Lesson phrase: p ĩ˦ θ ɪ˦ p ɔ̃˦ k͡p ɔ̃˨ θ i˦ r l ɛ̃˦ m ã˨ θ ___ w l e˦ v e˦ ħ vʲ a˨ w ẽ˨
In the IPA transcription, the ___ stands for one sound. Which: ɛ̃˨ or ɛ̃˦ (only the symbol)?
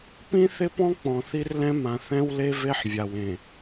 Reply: ɛ̃˦